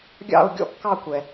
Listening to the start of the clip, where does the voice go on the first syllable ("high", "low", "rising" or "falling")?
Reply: falling